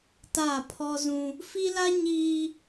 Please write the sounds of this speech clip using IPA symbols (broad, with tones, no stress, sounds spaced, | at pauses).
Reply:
t a˦˨ pʰ ɔ˦ z ũ˦ | f i˦ l a˦ ɲ iː˦